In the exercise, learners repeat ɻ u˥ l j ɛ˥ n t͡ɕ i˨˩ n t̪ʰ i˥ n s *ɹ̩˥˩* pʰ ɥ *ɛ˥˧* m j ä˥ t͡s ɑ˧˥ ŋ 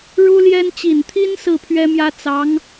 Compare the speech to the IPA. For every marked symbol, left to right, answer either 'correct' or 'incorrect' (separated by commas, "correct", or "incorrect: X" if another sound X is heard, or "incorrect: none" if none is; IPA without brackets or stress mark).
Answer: correct, incorrect: ɛ˥